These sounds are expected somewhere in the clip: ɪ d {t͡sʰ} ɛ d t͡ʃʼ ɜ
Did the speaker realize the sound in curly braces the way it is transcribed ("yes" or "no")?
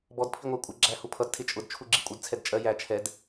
yes